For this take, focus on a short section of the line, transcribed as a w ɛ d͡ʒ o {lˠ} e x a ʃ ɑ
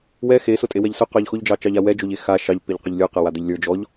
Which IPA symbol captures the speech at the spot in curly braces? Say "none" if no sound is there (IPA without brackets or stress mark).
ʎ